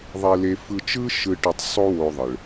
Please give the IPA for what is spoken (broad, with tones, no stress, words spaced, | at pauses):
ðˤe˧le˧fɯ˧t͡ʃɯ˥ ʃɯ˧ʈʏ˧tˤ sˤo˥wo˧ðˤɯ˩ɭ